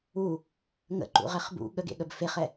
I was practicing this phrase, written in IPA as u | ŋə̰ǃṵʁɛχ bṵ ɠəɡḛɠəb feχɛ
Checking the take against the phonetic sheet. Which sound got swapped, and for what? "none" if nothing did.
none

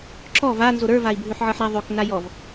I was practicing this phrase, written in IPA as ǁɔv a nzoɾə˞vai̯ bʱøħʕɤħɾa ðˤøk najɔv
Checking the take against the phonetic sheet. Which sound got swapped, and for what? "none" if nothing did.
none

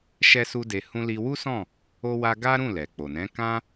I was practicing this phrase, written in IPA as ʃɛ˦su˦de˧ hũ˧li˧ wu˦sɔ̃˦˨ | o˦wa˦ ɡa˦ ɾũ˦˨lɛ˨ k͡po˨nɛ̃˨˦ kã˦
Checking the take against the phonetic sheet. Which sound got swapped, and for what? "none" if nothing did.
none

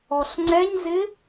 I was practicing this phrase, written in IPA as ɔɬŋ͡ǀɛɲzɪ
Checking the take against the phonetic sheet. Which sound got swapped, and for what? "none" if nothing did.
none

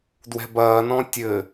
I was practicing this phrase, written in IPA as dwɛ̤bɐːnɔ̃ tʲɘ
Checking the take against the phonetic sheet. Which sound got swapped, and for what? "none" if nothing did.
none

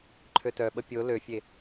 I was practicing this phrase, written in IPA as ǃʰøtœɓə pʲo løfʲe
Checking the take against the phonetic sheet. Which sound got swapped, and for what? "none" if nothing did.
none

